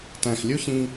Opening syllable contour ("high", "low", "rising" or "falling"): low